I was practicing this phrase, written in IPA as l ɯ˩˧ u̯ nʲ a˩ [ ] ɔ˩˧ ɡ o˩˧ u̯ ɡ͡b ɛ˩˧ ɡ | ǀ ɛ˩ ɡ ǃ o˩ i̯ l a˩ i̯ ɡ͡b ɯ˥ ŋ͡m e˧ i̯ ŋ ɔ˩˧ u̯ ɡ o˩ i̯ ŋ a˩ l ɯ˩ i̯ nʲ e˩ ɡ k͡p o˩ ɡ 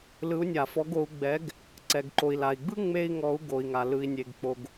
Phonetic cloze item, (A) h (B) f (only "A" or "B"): B